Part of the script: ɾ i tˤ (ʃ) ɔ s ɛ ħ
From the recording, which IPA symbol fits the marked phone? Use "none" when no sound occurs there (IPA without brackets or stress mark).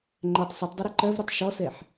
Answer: ʃ